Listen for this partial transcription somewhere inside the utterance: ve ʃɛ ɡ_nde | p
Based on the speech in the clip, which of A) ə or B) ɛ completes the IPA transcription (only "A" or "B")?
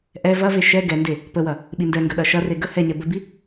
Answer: B